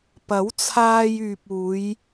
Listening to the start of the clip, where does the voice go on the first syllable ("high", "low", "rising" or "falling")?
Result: rising